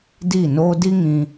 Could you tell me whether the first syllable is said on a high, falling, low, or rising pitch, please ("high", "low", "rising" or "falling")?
falling